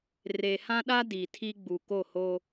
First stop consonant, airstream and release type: implosive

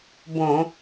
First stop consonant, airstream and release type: plain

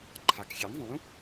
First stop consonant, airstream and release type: click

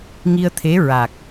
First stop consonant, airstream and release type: aspirated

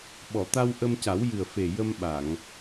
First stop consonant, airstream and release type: implosive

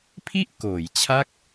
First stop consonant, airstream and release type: aspirated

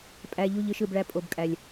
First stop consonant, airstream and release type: ejective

